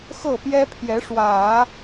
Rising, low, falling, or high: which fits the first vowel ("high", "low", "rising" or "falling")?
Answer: falling